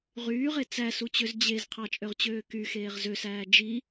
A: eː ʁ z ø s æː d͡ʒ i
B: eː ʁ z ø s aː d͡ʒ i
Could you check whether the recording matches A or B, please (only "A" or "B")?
A